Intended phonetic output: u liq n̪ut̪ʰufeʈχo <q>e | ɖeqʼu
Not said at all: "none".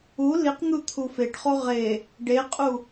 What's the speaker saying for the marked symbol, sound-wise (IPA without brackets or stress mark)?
ʁ